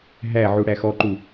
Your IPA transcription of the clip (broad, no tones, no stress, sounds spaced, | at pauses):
ɦ æ ʕ u ɽ æ x ɔ ǃ u